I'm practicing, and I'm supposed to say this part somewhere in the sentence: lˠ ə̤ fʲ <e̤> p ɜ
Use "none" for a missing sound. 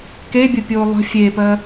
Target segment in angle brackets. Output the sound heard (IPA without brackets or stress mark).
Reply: e